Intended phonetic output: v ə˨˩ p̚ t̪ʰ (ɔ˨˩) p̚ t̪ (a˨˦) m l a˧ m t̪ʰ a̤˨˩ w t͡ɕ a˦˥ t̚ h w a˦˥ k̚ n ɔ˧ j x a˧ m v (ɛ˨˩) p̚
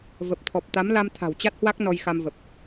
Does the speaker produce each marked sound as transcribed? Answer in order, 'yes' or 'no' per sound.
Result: yes, yes, no

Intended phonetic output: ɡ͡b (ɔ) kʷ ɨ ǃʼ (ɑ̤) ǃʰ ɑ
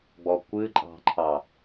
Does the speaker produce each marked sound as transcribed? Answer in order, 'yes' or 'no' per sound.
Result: yes, yes

